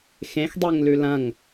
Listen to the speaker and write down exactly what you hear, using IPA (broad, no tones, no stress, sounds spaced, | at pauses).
x ẽ x dˤ e ŋ l ʉ l ɐ̃ ŋ